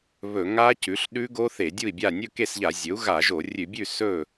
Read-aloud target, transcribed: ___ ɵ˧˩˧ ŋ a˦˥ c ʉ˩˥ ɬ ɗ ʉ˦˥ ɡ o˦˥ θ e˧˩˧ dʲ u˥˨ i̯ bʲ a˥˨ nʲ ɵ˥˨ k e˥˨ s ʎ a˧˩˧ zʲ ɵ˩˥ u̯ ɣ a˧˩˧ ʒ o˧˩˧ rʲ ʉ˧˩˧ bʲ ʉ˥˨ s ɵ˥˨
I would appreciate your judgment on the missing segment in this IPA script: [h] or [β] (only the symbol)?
β